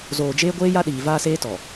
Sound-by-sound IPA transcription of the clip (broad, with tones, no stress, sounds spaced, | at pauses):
z oː˨ d͡ʒ eː˦ ɡʷ eː˦ j a˦ ɗ iː˨ v aː˦ s eː˦ t ɔ˨